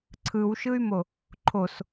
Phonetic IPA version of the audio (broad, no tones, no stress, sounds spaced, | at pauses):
ǀʰ ɯ w ʃ ɯ y̯ m o | ǃʰ o s